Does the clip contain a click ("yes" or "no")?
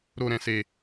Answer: no